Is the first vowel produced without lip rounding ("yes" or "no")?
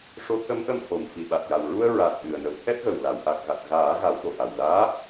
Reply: no